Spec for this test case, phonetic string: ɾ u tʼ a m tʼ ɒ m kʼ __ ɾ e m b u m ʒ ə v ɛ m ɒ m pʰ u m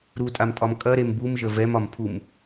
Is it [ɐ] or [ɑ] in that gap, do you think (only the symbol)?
ɐ